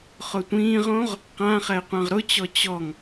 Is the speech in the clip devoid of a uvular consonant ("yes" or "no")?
no